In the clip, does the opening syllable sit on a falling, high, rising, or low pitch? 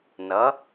rising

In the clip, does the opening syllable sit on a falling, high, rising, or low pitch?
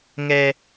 low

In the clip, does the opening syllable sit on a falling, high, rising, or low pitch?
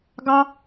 high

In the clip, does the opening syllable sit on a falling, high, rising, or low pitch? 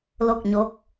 falling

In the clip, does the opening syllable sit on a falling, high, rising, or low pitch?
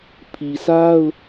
low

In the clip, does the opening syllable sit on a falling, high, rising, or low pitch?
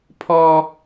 high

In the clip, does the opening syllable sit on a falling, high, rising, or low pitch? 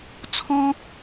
high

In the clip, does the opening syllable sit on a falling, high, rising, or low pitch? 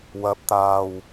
rising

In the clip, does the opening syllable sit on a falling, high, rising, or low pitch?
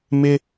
high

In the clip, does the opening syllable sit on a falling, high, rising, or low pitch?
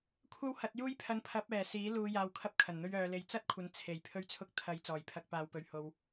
high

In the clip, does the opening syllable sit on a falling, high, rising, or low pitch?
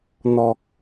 low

